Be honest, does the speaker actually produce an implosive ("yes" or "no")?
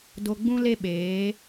yes